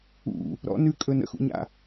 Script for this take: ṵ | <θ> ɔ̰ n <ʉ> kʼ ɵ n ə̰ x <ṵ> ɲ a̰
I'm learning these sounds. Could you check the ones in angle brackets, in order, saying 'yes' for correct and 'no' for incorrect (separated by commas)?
no, yes, yes